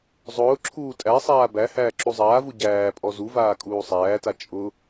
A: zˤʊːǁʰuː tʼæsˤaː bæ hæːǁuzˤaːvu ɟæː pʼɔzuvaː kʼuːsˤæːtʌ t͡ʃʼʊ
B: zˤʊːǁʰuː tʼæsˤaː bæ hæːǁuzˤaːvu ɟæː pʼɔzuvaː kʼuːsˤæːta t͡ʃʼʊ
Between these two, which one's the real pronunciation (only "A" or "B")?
B